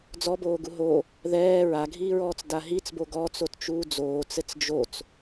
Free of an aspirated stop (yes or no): yes